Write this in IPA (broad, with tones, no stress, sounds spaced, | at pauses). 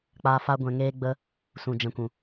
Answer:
k͡p a˧ f a˦ ɡʷ ɛ̃˧ ŋ eː˦ ɡ͡b ə˦ | s ũ˨ d͡ʒ ɛ̃˨ kʷ ũ˨